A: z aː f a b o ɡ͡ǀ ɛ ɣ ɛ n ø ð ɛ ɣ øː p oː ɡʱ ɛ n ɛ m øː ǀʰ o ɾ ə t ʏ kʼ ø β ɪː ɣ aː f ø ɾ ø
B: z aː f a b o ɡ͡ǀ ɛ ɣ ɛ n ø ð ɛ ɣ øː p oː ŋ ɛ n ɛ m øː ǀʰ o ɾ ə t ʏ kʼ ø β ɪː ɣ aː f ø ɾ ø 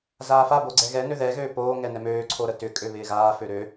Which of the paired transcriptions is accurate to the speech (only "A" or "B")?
B